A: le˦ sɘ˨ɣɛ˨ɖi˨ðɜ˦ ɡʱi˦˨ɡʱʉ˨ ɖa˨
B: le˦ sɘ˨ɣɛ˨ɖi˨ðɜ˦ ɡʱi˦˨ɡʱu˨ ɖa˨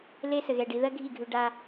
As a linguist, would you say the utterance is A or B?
A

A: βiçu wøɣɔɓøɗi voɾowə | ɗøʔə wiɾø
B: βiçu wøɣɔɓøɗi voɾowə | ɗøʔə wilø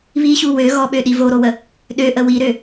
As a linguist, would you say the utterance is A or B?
A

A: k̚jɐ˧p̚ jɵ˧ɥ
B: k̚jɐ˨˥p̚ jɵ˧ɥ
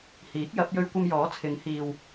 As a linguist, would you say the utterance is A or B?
B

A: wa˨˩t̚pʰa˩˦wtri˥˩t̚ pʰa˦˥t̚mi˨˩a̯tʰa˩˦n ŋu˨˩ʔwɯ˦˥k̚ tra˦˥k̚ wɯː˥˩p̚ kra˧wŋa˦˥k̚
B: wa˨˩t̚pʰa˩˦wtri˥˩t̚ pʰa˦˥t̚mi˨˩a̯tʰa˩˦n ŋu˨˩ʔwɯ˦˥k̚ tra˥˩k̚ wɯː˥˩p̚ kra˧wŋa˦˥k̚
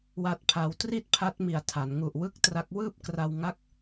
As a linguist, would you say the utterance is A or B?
A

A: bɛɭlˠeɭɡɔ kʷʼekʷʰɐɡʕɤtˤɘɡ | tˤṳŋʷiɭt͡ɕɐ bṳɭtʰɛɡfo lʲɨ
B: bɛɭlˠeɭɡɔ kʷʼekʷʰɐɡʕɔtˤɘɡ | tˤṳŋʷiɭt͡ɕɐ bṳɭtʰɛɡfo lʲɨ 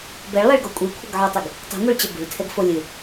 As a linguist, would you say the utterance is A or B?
B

